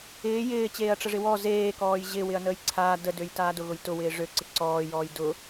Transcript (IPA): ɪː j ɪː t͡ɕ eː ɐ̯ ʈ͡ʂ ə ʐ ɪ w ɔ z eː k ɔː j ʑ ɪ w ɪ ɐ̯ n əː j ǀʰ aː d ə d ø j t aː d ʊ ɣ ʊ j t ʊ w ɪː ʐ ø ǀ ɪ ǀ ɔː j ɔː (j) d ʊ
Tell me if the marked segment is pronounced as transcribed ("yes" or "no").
yes